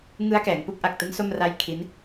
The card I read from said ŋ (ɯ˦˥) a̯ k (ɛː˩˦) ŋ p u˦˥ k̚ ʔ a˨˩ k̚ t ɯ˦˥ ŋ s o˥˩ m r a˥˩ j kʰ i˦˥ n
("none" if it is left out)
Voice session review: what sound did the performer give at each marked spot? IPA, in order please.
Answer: ɯ˦˥, ɛː˩˦

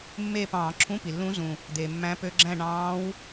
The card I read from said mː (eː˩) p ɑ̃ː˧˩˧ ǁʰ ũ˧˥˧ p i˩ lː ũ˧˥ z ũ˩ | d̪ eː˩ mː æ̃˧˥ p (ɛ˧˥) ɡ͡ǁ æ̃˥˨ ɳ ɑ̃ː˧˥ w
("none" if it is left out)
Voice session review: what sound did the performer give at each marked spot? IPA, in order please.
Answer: eː˥˨, ø˧˥

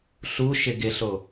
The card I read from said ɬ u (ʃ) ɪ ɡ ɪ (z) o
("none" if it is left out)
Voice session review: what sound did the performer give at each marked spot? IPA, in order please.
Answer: ʃ, ɬ

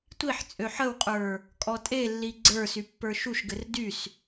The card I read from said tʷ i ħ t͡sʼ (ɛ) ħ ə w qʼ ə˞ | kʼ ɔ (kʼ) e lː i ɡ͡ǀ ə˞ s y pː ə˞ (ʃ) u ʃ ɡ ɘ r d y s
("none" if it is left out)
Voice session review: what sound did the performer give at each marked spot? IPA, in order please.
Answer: ø, tʼ, ʃ

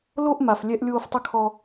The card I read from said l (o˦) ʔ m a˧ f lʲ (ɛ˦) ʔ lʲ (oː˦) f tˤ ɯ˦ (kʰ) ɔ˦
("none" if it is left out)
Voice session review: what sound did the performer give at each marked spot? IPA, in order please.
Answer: o˦, ɛ˦, oː˦, kʰ

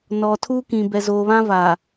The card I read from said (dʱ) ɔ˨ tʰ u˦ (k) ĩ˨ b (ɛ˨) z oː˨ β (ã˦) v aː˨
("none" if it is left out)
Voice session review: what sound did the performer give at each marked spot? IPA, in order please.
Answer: n, k, ɛ˨, ã˦

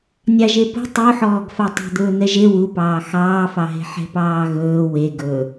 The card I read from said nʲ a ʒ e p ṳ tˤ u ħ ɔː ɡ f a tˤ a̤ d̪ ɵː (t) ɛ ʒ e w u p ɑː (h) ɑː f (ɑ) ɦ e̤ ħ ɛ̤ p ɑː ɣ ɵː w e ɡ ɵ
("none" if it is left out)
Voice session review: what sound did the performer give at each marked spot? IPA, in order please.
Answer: n̪, x, ɑ

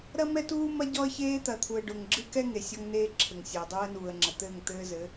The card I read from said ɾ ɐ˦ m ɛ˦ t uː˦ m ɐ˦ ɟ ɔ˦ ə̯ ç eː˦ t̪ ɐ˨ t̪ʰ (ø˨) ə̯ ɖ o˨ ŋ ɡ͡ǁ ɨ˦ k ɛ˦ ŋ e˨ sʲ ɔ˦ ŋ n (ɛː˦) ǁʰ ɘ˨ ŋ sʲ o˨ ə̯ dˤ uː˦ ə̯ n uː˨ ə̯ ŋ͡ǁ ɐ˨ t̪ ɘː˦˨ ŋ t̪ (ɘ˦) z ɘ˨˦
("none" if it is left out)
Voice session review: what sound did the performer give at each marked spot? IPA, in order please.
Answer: u˨, eː˦, ɘː˦

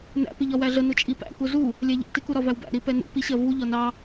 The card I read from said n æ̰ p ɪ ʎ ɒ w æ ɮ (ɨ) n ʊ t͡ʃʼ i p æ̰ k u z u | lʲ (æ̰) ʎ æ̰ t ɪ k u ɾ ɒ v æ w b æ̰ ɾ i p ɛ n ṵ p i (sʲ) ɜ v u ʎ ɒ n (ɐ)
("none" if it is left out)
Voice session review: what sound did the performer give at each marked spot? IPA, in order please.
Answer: ə, æ, ɕ, ɑ

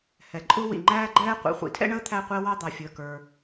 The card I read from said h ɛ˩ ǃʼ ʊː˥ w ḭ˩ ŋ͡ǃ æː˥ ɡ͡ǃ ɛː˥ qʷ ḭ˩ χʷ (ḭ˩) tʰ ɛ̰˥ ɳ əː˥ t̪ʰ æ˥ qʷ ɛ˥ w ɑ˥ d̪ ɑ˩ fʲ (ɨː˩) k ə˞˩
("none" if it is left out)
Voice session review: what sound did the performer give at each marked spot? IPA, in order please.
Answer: ḭ˩, əː˩

